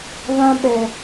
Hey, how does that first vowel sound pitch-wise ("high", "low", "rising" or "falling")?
high